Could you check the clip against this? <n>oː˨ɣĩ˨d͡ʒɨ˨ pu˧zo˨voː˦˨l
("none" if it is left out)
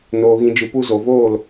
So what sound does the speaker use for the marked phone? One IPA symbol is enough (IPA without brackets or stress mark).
n